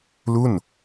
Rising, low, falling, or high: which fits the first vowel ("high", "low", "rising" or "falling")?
falling